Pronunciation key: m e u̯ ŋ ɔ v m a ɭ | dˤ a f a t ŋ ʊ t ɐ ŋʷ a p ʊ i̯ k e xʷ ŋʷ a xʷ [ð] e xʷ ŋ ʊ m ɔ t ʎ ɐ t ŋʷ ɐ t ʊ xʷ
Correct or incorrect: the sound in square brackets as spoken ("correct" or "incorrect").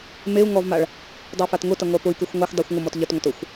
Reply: incorrect